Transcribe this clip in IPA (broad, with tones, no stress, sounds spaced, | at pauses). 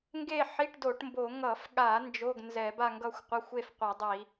ŋ ɡ e˥˧ ħ i˧˥˧ ʈ d o˧˩˧ ʈ m b o˧˩˧ ŋ ʌ˧˩˧ f ɠ a˧˩˧ n d͡ʒ o˧˥˧ ɡ n z ɛ˧˩˧ b a˥˧ ŋ ɡ ʌ˥˧ xʷ qʷ ʌ˧˥˧ xʷ e˥˧ f qʷ e˧˩˧ dˤ i˧˩˧